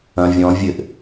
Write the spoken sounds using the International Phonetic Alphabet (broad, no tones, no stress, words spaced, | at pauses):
ɐ̃ vʲɔ̃ vʲɘʔ